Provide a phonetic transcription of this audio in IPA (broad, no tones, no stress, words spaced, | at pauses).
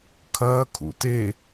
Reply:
kʰɐːkʰṵ te